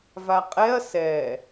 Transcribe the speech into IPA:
vaqʼɛɐ̯ sɛ

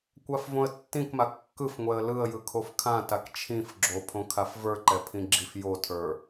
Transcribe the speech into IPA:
kʷafvõə̯tːĩkma kːɯfŋʷɛə̯ lɯə̯jɯ kʰofkʰãtak t͡ʃʰĩf ɡ͡ǁopʰõkʰaf və˞ǃɛpʰĩ ɡ͡ǁifjotʰə˞

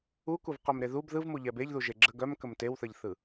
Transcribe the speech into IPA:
ukuvqœm ɾeðub ðɯvmu ʎɛbeʎ ðuʒeɡ͡ǁə ɡœm kəmtewθəʎθɯ

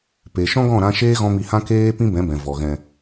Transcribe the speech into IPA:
pe˨ ʃɔ̃˦ɡɔ̃˦˨ɾã˧ ʃeː˦ɣɔ̃˧ mi˧hã˦ keː˦ pĩ˦bɛ̃˨˦bɛ̃˨ vɔ˨ ɣɛ̃˨

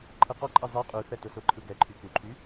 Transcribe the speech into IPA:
ǃʰɯqɔǃʼɛ zˤɛ qʼyfɛtʊ sʊǃʰɯ ɡɛǃʰy kuǃʰy

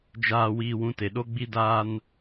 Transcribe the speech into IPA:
d͡ʒaː˨wiː˨wũ˨ te˨ɗo˦ɡ͡bi˦ daː˦n

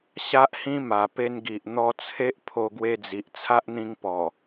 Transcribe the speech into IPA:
ɕa˦ʔhĩ˦ ma˨˩pe˧nɡi˨ʔ n̪ɔ˧t͡sʰe˦ʔ pʰo˧ɡwe˧d͡zi˨ʔ t͡sʰa˦ʔn̪ĩ˧ŋpɔ˨˩

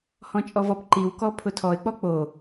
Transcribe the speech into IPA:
hɔ̃t͡ʃʼɔvɔp ǃiw kɔpʰʊtʰɔɪ̯ k͡pɔk͡po

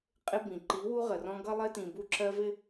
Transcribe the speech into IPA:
qʼɪ˦bĩ˨ ǃi˨˦wu˦ʁə˨rɔ̃˦ ɡʌ˦lˠɪ˦tĩ˨ bu˦ǁɜ˦vɪ˦

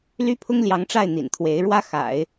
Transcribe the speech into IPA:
ly˥pʰʊ˥ŋljɑ˧˥ŋʈ͡ʂa˥˩ɪ̯ n̪ḭ˨˩nt̪ʰwe˧˥ɪ̯ ɻwä˥xa̰˨˩˦ɪ̯

